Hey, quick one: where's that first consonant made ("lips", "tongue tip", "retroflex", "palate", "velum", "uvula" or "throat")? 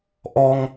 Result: throat